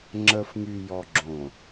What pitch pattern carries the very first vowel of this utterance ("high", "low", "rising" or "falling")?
low